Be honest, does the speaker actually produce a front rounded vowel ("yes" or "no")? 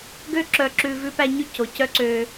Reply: yes